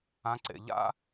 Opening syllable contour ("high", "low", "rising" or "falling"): low